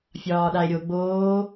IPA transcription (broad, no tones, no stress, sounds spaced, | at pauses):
fʲ ɒː ɗ a e̯ ɾʲ o ɡ͡b oː